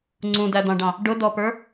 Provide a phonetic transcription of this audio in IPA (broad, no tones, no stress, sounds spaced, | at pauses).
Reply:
ŋ͡ǀ ũ d æ d̪ ɑ̃ ɖ ɑ̃ | ɖ ʊ d ɔ p ə˞